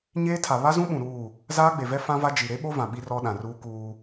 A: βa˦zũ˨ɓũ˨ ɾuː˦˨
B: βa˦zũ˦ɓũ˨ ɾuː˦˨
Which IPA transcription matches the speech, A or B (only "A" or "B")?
B